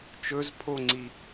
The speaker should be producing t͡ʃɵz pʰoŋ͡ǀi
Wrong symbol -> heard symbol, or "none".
none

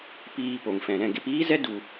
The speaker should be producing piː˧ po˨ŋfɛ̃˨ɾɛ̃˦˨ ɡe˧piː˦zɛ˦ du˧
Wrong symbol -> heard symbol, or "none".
none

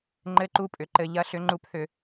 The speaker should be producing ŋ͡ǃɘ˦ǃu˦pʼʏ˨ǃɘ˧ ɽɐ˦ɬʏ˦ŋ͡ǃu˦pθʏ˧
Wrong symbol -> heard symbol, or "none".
ɽ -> ʎ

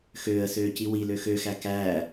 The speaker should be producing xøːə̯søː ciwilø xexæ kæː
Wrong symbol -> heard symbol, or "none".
e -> ø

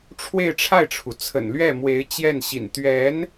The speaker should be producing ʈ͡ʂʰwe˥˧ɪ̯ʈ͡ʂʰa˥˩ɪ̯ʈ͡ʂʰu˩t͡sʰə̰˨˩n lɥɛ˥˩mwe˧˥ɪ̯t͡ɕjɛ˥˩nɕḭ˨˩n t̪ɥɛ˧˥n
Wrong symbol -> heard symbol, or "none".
none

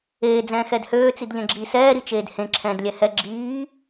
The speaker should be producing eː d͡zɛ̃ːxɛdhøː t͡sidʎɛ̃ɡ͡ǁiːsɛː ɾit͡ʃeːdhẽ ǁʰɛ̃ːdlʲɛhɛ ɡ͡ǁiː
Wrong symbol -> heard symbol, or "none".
none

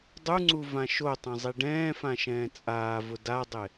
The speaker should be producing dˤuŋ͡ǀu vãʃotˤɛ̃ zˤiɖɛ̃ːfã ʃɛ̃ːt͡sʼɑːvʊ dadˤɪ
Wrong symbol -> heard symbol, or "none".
ɑː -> aː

